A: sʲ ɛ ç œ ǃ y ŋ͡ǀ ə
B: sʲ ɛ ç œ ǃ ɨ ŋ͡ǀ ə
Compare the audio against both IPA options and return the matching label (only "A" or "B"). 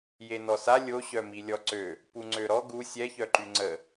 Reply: A